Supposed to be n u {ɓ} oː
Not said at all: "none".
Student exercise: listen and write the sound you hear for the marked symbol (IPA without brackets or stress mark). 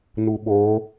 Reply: ɓ